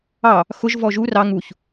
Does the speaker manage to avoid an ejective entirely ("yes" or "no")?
yes